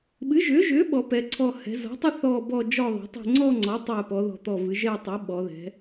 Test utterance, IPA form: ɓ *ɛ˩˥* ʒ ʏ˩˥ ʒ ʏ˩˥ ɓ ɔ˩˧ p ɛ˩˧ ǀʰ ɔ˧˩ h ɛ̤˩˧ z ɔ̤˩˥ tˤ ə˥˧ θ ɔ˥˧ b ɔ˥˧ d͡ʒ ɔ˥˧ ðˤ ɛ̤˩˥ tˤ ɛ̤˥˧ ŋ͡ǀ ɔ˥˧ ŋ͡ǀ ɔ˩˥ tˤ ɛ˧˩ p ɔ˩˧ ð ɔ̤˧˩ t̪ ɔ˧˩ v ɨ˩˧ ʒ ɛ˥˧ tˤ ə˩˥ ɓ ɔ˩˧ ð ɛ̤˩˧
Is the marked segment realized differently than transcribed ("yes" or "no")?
yes